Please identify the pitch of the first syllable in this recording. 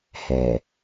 low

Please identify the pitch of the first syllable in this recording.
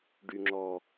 low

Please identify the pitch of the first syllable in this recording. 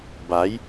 rising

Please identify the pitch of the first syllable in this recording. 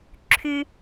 high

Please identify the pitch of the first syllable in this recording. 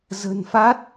low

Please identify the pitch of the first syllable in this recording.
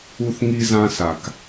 high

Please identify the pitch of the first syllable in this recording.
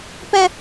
high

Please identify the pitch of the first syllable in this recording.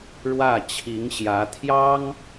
falling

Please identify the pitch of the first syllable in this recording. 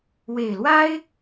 low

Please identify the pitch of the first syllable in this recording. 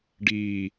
low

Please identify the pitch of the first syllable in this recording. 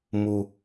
high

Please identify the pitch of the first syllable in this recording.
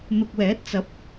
low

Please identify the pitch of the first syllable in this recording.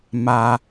high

